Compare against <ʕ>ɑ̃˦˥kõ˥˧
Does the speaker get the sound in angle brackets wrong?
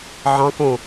no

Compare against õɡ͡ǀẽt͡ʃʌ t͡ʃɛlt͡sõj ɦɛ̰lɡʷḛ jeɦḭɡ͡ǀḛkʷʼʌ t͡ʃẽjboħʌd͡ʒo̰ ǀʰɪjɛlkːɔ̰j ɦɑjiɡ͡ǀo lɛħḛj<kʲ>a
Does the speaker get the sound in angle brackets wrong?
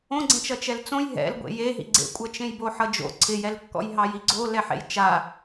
yes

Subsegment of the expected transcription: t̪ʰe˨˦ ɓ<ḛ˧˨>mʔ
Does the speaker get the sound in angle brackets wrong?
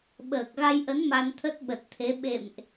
no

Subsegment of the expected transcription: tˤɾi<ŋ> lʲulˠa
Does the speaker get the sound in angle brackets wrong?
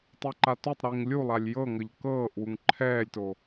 no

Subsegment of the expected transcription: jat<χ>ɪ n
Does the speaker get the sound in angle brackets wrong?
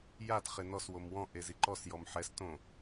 no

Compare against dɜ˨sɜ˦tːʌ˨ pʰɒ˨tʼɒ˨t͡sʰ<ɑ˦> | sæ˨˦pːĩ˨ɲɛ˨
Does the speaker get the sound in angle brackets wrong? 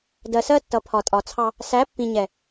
no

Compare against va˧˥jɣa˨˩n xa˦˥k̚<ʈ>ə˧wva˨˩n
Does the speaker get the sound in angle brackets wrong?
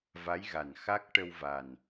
no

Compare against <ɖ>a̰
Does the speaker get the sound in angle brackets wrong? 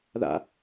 yes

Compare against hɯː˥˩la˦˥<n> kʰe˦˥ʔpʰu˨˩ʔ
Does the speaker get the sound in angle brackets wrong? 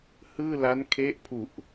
no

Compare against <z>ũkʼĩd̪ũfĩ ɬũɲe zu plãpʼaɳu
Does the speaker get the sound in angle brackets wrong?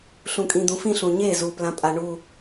yes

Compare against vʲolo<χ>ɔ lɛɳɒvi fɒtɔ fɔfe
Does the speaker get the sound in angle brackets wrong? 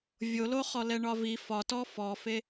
no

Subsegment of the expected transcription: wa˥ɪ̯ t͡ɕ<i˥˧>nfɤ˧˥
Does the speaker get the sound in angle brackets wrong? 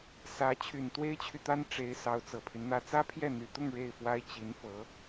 yes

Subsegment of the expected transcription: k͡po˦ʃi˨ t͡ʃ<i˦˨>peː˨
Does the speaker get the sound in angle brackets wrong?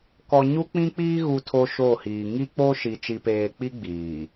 yes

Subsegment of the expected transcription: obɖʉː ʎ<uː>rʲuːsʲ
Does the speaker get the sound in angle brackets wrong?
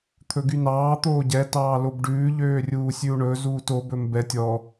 yes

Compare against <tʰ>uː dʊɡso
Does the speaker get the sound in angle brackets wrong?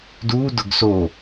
yes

